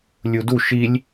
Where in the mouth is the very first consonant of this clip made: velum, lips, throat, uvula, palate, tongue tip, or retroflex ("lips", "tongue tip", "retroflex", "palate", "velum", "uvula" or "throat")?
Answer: tongue tip